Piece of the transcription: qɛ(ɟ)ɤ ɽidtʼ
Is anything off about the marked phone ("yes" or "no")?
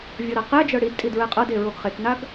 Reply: yes